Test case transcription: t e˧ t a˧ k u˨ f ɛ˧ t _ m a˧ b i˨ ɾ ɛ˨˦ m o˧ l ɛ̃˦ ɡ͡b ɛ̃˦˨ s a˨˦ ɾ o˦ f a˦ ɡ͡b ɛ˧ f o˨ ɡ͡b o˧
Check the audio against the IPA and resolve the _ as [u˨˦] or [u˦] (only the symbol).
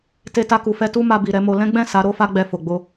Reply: u˦